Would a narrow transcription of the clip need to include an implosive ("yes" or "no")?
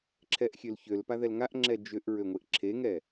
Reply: no